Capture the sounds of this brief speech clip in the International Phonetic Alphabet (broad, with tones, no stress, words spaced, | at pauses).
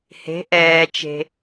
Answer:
he̤˩˧ʔɛː˩t͡ʃe̤˩